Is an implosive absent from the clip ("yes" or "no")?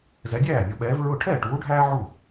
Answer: no